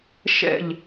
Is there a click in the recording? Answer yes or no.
no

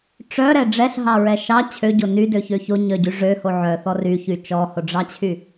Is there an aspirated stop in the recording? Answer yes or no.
yes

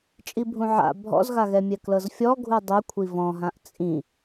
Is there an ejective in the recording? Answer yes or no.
yes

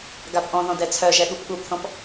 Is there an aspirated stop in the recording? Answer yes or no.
yes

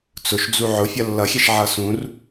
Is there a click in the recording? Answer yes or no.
no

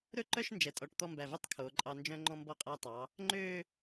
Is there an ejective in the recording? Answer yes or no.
yes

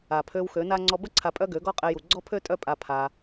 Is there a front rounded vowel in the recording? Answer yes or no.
yes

